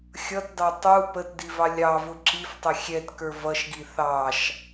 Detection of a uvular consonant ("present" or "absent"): absent